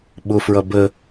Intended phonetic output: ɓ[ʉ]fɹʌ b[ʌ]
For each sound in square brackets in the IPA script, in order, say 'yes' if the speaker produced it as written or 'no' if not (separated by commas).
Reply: no, no